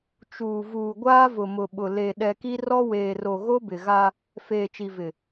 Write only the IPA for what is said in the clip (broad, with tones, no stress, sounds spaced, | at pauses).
t͡ʃ uː˨ v uː˨ ɡʷ aː˦ v ʊ˨ m ʊ˨ ɓ ʊ˨ l e˨ ɗ ɛ˨ k i˦ r ɔ˦ w eː˨ r o˨ ɣ o˦ b ɪ˨ ɣ a˦ | f eː˨ t͡ʃ i˨ v ɪ˨